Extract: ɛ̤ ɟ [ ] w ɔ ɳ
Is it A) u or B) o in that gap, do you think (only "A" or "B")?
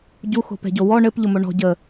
B